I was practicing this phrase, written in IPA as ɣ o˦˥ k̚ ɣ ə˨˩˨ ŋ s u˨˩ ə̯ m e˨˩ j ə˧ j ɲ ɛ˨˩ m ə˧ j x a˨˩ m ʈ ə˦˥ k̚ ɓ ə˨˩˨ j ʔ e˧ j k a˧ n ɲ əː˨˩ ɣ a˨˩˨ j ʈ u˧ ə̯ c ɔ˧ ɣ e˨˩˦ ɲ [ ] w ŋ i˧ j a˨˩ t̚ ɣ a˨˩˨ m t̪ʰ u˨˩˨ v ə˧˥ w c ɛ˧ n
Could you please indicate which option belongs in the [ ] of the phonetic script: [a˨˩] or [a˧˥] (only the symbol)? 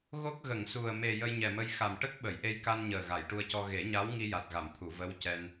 a˧˥